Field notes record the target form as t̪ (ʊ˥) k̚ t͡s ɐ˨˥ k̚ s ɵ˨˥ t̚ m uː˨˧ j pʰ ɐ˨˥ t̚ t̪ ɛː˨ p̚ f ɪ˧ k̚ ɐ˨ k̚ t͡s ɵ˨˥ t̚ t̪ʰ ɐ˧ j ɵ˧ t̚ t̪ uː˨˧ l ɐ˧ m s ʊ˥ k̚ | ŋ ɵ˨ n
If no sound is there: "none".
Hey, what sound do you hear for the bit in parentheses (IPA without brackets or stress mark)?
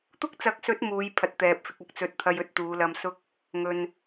ʊ˥